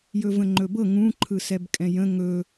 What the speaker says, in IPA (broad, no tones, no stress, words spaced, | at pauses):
jɵvə̃ŋ͡ǃɵbɤ ŋũǃʰɯ sɛbkʼɛ̃jə̃ ŋɵ